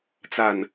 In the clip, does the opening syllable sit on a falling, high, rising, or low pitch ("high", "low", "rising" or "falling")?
low